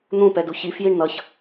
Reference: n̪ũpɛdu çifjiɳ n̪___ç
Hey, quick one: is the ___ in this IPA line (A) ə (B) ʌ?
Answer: B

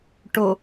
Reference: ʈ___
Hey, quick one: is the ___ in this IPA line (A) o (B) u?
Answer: A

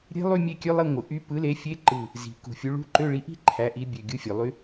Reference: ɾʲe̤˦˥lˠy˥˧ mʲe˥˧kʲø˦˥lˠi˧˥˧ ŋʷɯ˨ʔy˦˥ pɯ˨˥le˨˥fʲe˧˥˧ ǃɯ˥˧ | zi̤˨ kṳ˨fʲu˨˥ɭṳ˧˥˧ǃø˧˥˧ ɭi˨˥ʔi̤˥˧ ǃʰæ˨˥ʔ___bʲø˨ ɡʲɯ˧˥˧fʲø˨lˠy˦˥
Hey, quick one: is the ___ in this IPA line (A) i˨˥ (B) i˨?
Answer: A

